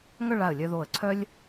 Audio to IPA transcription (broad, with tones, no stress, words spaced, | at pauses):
ŋœ˥˧ɭa˧˩ə̯ lʲœ˧ðo˧˩ə̯ǀʰœ˥lʲ